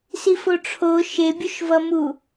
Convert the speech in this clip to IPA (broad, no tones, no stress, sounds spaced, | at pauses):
s i f o ʈ͡ʂʰ o ʃ e bʲ u ʃ v ʌ m u